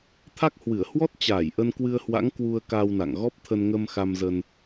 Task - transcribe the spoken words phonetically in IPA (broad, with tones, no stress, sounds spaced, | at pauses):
t̪ʰ a˦˥ k̚ h w ɨ˧˩ ə̯ h w ɔ˦˥ t̚ t͡ɕ aː˧˩ j ʔ ə˧ n k w ɨ˧ ə̯ h w a̰˧˥ ŋ k w u˧ ə̯ k a˧ w n a̰˧˨ ŋ ɣ ɔ˦˥ p̚ t̪ʰ ə˧ n ŋ ə˧ m x a˧ m z ə˧ n